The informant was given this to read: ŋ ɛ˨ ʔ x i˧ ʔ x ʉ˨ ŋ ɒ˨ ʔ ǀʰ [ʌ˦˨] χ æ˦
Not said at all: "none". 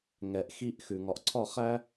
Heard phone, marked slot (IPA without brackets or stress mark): ɒ˦˨